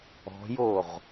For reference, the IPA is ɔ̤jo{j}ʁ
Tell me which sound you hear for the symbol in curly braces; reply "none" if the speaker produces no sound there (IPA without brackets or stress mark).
none